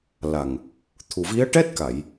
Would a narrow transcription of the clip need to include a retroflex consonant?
yes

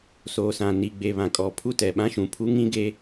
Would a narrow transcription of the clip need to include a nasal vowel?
yes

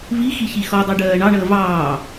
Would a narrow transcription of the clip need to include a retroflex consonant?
yes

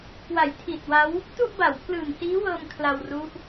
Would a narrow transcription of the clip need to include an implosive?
no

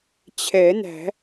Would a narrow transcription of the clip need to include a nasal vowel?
no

